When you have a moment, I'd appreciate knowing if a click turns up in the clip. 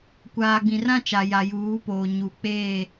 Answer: no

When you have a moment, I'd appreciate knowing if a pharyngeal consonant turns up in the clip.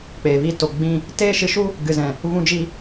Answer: no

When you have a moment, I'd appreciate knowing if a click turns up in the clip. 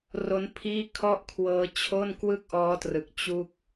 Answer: no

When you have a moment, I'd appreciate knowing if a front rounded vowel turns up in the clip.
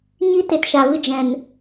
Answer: no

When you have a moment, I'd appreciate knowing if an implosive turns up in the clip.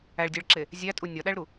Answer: yes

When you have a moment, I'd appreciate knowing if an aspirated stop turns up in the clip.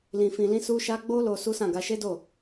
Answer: no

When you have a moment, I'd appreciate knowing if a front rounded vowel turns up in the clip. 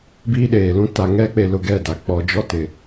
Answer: no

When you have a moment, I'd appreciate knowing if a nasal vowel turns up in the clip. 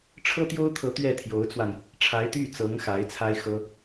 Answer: no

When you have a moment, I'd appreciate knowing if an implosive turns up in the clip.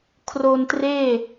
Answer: no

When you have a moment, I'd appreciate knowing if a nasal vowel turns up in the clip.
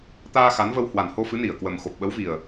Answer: no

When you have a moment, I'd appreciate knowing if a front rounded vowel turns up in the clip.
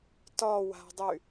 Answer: yes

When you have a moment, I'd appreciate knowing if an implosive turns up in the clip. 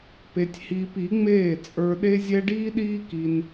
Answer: yes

